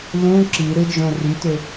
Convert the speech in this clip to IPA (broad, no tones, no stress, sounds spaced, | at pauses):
l ũ ǁ i ɾ ɯ d͡ʒ õ r y t ø